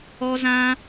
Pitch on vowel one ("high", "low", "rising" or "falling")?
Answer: high